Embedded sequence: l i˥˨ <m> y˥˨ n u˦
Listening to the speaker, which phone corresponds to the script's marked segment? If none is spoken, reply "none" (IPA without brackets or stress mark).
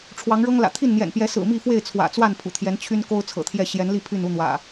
pʰ